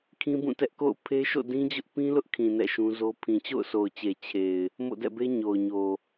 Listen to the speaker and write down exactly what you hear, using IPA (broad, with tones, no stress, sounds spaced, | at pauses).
kʰ ĩ˦ b ũ˦˨ t ɛ˦ ʔ k o̰˦˨ ʊ̯ pʰ e˦ ʃ o̰˦˨ d ĩ˦ d͡ʑ ʊ˦ ʔ p ĩ˦ l ʊ˦ ʔ kʰ ĩ˨ n ɛ̰˦˨ ʃ ũ˦ z o˦ pʰ ĩ˨ t͡ɕ o̰˦˨ ʊ̯ s o˨ ʊ̯ t͡ɕ e˨ t͡ɕʰ e˨ ɪ̯ | m o̰˦˨ d ɛ̰˦˨ b e˦ ɲ o˨ ʊ̯ ɲ o˨